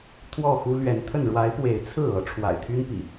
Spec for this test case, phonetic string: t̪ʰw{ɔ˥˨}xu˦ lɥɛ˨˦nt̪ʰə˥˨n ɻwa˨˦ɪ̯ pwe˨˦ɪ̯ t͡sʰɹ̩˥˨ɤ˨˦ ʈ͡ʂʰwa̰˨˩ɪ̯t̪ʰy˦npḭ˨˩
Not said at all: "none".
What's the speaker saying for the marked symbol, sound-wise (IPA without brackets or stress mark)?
ɔ˥˨